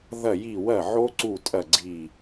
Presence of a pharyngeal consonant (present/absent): present